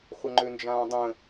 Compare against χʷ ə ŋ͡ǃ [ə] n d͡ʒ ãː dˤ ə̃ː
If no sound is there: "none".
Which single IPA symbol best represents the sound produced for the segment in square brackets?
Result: ø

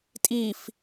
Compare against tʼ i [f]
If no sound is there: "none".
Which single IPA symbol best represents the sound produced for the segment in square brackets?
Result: f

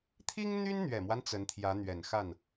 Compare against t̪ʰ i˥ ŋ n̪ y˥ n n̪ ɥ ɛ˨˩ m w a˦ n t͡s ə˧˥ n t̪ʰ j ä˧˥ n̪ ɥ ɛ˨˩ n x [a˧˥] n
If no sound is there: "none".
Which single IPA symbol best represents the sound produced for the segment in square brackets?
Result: a˥˩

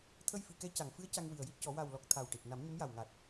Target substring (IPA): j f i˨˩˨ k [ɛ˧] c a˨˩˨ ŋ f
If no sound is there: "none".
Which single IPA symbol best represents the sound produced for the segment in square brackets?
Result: ɛ˧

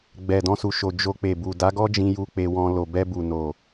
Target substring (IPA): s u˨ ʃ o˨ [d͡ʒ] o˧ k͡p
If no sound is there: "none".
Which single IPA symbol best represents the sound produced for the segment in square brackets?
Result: d͡ʒ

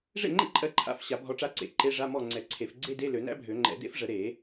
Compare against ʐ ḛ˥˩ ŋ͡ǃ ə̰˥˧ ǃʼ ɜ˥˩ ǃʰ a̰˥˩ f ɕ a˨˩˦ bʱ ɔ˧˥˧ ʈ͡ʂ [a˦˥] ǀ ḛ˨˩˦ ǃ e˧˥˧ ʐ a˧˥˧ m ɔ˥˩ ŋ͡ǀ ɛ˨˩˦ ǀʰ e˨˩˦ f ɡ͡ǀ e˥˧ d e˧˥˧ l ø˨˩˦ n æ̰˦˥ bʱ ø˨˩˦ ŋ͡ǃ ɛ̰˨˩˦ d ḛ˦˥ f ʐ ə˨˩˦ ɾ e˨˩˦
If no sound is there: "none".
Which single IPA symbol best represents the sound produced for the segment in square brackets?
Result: a˦˥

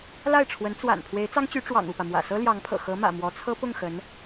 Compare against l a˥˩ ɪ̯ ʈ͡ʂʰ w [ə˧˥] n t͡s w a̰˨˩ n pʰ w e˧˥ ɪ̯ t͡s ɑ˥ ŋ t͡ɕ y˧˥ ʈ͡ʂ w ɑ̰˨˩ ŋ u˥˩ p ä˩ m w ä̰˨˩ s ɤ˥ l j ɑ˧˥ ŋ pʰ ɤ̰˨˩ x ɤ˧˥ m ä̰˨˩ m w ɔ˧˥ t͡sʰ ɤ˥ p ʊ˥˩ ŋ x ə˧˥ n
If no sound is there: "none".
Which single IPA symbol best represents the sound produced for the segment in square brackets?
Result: ə˧˥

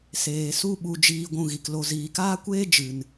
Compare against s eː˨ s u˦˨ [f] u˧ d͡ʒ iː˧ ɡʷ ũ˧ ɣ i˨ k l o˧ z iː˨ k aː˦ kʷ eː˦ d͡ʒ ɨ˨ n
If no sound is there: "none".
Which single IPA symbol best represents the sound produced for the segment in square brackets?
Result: ɓ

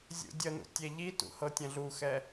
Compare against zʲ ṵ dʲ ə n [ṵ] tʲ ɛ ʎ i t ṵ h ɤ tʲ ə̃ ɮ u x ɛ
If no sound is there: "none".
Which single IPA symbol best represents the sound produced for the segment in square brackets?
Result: ṵ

